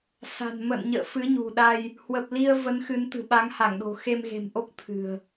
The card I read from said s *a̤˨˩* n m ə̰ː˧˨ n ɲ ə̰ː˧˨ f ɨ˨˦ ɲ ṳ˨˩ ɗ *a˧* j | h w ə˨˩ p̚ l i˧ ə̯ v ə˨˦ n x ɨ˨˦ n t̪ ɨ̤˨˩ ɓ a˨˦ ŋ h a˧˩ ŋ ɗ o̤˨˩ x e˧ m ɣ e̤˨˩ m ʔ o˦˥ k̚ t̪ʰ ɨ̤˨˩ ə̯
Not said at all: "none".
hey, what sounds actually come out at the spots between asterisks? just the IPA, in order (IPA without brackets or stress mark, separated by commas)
a̤˨˩, a˧